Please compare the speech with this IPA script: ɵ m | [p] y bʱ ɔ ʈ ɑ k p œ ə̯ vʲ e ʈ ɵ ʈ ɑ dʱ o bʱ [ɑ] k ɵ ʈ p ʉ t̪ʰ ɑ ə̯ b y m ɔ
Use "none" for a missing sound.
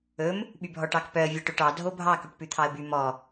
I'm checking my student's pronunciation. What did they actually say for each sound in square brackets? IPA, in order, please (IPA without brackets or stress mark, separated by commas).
ɓ, ɑ